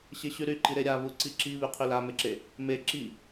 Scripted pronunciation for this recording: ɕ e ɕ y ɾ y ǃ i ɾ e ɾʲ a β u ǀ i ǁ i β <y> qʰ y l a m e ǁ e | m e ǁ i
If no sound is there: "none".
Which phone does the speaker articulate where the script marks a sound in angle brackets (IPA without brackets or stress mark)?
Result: y